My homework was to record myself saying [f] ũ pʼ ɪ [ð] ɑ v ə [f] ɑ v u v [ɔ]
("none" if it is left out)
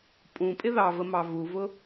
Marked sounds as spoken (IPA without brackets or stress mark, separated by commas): pʼ, ð, m, ʊ